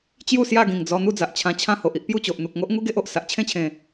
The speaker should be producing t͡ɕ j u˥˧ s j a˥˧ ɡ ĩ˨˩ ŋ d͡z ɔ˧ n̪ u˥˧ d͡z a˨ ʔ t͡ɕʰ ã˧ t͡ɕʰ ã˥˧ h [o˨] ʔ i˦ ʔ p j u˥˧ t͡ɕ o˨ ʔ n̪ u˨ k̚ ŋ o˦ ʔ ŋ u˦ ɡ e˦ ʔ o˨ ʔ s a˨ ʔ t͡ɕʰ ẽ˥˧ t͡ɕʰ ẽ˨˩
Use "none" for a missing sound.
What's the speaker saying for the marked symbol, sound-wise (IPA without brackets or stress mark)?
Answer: o˨